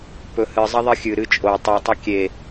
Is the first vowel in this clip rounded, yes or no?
yes